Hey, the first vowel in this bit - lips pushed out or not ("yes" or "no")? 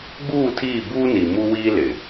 yes